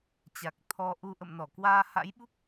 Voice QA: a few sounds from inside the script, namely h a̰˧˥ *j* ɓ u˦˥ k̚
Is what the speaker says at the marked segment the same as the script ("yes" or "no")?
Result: yes